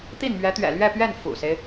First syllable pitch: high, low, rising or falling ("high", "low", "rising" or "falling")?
falling